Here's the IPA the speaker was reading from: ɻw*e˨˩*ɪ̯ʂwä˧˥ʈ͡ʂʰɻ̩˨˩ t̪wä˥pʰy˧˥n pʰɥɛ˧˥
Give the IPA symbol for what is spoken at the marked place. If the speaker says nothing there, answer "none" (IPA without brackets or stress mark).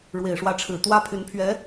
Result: e˨˩